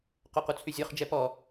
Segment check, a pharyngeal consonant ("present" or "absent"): absent